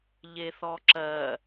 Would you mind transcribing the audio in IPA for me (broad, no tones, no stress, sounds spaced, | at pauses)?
ʎ e θ ɔ ǁ ɜ